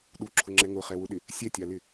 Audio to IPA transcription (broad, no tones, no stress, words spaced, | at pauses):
ɗuǁʰʊŋ͡ǁɛ ŋʊχɛwʊɗɪ | sʲɛtʲalɪ